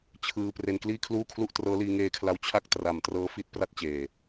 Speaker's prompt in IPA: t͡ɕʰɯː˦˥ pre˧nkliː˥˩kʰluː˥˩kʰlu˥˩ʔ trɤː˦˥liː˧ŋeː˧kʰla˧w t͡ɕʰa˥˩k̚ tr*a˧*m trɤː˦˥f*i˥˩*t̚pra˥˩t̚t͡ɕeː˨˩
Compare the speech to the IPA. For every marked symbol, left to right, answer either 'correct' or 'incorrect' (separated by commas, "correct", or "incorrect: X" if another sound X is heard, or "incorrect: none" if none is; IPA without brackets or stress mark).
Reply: incorrect: a˨˩, correct